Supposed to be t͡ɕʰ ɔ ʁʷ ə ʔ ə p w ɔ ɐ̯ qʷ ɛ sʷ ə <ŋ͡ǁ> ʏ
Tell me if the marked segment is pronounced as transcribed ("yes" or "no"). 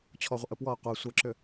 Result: no